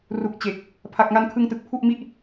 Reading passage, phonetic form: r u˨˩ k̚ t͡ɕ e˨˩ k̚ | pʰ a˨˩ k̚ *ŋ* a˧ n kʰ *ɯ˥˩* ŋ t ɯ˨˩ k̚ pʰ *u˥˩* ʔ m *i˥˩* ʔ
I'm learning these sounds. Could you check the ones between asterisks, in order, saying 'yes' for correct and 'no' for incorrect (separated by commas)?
yes, no, yes, yes